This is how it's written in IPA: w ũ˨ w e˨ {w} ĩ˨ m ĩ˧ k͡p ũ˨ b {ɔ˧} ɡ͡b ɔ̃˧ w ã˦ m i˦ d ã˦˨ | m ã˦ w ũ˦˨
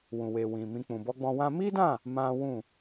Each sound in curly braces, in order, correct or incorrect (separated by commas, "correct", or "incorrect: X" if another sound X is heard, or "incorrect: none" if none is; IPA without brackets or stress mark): correct, correct